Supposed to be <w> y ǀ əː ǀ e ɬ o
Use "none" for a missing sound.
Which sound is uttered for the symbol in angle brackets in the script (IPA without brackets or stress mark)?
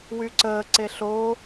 w